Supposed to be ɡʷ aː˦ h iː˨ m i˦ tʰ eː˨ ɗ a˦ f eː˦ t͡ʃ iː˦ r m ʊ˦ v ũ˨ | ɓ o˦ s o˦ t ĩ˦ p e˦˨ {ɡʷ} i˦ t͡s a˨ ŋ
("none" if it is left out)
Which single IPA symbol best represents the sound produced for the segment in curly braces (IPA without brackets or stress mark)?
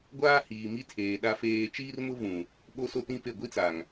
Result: ɡʷ